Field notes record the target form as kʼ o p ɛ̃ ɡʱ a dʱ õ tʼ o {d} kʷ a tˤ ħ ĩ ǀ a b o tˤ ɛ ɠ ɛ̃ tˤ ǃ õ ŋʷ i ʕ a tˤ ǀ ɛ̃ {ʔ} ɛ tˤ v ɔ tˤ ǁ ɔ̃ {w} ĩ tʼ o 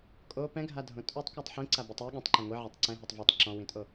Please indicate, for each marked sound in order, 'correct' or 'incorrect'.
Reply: incorrect: tˤ, incorrect: ɦ, correct

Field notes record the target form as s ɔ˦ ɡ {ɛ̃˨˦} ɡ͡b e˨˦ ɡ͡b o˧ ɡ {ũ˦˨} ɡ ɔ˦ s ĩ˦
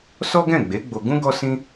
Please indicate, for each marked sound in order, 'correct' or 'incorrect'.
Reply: incorrect: ɛ̃˦˨, incorrect: ũ˦

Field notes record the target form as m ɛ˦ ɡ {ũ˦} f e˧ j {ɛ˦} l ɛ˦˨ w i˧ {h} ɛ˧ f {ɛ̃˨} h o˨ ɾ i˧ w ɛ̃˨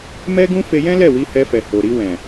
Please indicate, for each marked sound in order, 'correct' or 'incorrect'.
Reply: correct, incorrect: ɛ̃˦, correct, incorrect: ɛ˨

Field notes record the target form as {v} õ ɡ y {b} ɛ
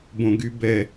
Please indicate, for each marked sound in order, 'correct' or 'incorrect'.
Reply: incorrect: b, correct

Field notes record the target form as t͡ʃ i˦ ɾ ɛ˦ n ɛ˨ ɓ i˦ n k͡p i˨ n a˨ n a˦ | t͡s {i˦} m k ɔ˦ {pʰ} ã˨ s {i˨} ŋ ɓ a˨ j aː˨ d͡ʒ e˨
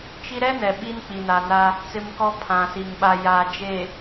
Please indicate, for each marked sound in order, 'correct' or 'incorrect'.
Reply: incorrect: ɪ˦, correct, correct

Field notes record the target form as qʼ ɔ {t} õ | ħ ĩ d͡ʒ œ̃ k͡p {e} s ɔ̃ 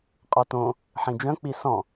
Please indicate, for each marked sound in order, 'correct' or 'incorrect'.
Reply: correct, incorrect: i

